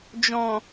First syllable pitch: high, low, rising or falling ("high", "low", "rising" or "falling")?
low